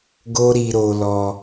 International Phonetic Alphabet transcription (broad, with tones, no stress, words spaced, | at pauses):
ɡo˦ɾi˧ɾo˧lɔ˧